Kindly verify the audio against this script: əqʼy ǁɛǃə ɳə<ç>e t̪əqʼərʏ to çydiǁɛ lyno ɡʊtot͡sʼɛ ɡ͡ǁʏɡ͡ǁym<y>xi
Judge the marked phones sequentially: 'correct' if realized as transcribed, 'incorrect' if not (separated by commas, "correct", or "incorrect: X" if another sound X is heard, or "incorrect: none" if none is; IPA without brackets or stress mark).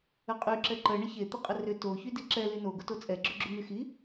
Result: correct, correct